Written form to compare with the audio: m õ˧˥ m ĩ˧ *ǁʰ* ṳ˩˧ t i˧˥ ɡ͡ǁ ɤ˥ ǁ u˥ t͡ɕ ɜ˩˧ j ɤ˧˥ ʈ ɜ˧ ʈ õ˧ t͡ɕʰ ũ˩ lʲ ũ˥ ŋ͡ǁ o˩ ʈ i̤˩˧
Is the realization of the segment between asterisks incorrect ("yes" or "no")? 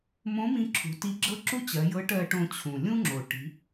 no